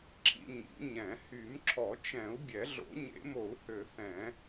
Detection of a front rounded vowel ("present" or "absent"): present